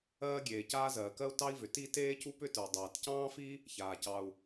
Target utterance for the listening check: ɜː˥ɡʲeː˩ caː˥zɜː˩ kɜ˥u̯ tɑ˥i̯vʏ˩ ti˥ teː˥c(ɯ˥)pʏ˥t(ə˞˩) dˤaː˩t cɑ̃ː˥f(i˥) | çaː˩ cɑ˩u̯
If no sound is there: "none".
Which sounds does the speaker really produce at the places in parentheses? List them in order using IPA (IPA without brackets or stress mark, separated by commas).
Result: u˥, ə˞˩, i˥